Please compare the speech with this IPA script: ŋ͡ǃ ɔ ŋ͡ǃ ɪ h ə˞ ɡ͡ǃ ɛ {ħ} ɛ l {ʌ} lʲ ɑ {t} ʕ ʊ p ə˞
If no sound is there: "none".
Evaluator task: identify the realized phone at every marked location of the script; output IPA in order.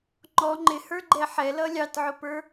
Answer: ħ, ʌ, t

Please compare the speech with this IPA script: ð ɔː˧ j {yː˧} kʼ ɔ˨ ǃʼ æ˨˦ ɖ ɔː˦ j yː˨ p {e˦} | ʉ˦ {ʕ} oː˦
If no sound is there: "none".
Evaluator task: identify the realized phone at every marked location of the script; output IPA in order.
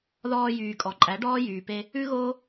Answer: yː˨, e˦, ɣ

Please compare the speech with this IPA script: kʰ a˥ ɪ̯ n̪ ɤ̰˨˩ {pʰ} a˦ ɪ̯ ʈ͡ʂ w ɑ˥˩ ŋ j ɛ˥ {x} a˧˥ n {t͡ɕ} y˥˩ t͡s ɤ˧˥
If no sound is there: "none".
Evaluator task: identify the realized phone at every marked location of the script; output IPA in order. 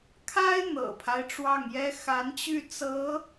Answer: pʰ, x, t͡ɕ

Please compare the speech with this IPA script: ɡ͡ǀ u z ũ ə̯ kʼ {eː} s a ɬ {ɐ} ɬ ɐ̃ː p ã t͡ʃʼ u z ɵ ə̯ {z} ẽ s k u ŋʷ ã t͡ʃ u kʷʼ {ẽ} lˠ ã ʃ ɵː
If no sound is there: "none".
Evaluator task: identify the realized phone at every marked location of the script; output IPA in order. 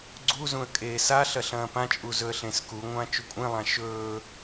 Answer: eː, ɐ, ɬ, ẽ

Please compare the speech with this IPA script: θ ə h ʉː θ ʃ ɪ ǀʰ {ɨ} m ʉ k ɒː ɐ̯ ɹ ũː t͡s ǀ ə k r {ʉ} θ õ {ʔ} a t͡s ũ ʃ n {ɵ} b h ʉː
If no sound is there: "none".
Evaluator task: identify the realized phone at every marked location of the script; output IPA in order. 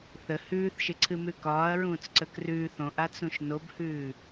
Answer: ɨ, ʉː, ʔ, o

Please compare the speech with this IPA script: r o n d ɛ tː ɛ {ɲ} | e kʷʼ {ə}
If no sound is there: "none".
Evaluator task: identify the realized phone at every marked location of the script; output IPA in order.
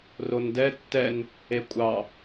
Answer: n, ɑ

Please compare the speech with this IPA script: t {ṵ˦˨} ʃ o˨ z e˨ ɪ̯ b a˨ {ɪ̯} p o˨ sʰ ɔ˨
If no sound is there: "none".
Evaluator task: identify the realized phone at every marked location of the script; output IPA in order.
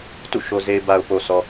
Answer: ṵ˦˨, ʊ̯

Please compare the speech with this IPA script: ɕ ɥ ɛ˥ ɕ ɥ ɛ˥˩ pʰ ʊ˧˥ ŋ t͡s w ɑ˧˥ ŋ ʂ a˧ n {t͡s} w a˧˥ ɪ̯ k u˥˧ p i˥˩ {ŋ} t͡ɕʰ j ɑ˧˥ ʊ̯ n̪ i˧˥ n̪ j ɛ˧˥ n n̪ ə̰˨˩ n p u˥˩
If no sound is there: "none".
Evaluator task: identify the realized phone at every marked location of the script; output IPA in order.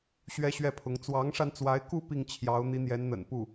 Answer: t͡s, ŋ

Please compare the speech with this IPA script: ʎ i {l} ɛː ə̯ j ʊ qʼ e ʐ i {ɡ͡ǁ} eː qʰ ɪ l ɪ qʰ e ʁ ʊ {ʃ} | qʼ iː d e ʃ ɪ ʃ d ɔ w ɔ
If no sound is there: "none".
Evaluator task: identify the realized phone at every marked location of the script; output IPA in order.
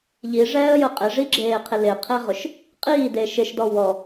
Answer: ʐ, ɡ͡ǁ, ʃ

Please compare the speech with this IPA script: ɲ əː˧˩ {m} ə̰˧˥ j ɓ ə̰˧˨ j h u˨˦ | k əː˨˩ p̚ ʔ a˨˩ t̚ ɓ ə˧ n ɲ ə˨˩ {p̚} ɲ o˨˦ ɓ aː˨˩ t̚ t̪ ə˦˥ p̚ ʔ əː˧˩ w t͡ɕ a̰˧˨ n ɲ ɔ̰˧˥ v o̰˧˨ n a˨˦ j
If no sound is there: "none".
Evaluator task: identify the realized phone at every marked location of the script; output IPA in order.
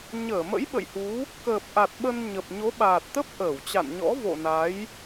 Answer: m, p̚

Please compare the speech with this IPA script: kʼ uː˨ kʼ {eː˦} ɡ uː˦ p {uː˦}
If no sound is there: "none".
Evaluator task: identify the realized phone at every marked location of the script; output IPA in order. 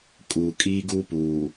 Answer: iː˦, uː˨

